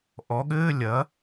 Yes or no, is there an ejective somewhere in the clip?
no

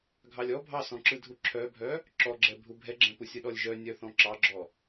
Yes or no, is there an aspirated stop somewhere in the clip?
yes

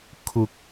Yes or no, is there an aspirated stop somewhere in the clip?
yes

